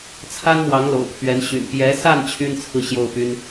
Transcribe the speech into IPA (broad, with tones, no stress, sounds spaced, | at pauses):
t͡sʰ a˥ n m w ɑ˧˥ ŋ l o̰˨˩ ʊ̯ pʰ ɥ ɛ˧˥ n ɕ y̰˨˩ n p j ɛ˧˥ s a˥˩ n t͡ɕʰ y˥ n t͡sʰ ɹ̩˥˧ ɕ j o˥˩ ʊ̯ p y˥ n